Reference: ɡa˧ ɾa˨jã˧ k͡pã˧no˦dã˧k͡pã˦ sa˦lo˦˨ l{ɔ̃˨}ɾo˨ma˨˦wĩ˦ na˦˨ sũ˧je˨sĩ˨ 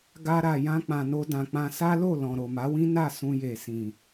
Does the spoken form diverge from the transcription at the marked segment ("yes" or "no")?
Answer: no